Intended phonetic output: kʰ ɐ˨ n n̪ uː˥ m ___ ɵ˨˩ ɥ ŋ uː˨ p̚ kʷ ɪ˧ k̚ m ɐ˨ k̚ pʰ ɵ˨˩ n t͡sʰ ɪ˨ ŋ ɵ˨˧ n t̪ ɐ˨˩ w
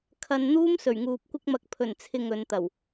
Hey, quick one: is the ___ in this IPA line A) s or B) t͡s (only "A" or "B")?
A